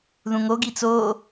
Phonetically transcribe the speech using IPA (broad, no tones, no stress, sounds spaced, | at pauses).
ð ũ ŋ o ɡ i t͡s o